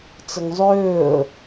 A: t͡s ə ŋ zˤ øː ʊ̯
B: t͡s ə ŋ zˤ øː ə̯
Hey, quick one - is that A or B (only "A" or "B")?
B